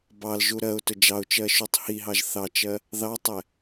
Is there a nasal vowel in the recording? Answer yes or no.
no